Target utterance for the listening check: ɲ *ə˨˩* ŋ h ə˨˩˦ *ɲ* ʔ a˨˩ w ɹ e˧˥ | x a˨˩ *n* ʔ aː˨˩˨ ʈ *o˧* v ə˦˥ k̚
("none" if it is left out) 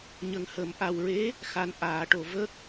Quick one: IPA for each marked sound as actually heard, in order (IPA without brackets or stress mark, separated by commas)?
ə˨˩, m, n, o˨˩˨